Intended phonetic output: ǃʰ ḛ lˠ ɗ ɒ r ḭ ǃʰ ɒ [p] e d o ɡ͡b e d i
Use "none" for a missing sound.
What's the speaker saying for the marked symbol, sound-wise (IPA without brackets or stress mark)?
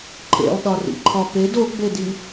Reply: p